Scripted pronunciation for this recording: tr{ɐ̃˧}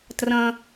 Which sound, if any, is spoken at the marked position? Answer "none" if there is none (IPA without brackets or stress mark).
ɐ̃˧